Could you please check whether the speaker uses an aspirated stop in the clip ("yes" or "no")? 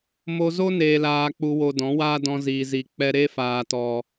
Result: no